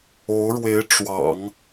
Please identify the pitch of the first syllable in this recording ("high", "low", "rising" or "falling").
rising